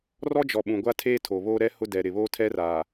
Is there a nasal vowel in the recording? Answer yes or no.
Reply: yes